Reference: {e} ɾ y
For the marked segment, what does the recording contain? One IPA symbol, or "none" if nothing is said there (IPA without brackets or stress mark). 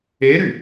e